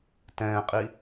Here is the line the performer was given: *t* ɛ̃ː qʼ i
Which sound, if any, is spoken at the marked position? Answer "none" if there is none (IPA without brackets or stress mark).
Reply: t